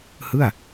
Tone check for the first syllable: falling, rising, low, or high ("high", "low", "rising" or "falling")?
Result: falling